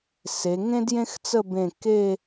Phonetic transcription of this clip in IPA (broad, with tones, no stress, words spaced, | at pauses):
se˩˧ŋẽ˥djẽ˥xt͡sə˥˧ bẽ˧˩kːe˥˧